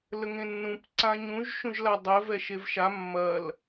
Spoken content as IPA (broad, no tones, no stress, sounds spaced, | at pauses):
l ə ŋ ẽ nː ũ p ǀ ã ɲ ũ ʒ ʃ ũ ʒ l a dˤ ɛ v ɛ ʃ e v ʃ a mː ɐ l